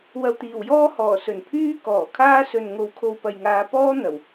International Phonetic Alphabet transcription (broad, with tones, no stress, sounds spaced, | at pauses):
w ɐ˨ w t̪ iː˨˩ w j ɔː˥ h ɔː˨˩ s ɵ˨˩ n pʰ yː˥ k ɔː˨˩ kʰ aː˥ s ɵ˨ n ŋ o˨˥ w kʰ o˨ w p ɐ˨ j ŋ aː˨˧ p ɔː˥ n̪ ɐ˨˩ w